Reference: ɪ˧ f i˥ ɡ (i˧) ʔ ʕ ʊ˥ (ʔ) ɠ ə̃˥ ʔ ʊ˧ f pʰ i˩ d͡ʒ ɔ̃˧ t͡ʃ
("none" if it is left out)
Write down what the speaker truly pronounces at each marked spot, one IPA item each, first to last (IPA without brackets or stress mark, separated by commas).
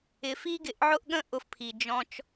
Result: ɪ˧, ʔ